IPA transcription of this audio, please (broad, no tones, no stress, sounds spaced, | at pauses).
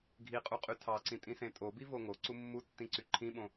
ɡʱ i qʼ u qʼ y tʰ ɑ ǀ ĩ tʼ ĩ s ẽ tʼ o b i v o ŋ o ǀ u mː u tː ĩ ǀ y ǃʰ ĩ ɓ õ